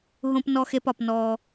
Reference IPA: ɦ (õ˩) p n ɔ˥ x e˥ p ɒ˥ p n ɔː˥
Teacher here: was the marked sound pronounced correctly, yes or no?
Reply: no